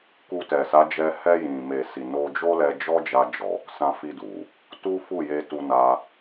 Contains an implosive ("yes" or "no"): no